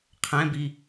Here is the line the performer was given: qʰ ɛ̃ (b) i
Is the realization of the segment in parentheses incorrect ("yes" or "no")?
no